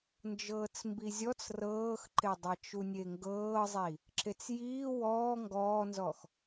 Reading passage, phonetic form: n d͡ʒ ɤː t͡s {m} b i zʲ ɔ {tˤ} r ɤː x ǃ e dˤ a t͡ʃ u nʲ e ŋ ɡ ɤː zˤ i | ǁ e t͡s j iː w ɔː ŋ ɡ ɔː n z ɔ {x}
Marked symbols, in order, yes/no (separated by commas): yes, no, yes